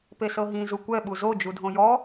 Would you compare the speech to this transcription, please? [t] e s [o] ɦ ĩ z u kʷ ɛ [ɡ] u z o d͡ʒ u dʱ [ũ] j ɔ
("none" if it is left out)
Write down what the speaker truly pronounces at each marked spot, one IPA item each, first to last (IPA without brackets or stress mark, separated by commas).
p, ɤ, ɓ, õ